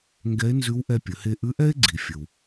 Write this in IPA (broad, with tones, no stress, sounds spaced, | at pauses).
ŋ ɡ ɛ˧˥ e̯ n z ʉ˧˥ w ʔ ɛ˧ pʲ ə˩˧ h e˧ ʔ ʉ˧˥ ʔ ɛ˥ e̯ ɡ͡ǀ i˩ fʲ ə˩ w